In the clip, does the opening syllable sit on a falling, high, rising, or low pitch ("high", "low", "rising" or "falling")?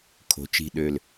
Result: rising